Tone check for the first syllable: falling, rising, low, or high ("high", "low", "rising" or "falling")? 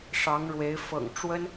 rising